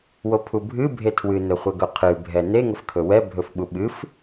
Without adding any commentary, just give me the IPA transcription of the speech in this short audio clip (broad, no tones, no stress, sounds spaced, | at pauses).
w o pʰ u bʱ ɨ bʱ e tʰ w ɨ n ɵ χʷ ɛ ɡ ɵ qʰ ɨ bʱ ɛ n e ŋ ə f kʰ ɵ w ɛ bʱ ɵ f ɓ u ɓ ɨ f